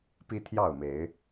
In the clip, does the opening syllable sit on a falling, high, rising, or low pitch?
high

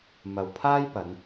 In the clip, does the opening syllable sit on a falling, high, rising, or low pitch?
low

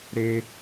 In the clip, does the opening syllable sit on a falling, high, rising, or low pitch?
high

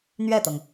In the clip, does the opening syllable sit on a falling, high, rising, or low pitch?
falling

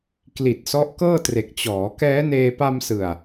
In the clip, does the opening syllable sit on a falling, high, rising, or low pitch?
low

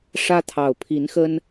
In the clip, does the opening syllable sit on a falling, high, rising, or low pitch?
high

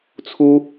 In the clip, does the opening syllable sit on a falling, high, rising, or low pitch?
high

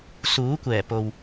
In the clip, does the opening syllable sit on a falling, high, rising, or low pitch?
rising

